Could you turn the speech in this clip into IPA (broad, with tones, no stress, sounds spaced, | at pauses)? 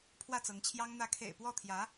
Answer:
pʰ w ä˥˩ t͡s ɤ˧˥ ŋ t͡ɕʰ j ɑ˥ ŋ n̪ ä˧˥ kʰ ḛ˨˩ ɪ̯ p w ɔ˥˩ t̪ʰ j ä˧˥